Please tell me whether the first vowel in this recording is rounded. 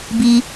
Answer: no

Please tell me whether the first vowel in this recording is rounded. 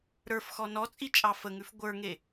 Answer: no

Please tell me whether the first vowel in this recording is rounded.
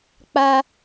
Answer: no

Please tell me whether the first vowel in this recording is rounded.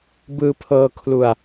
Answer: no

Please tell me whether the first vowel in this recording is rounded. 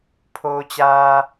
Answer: yes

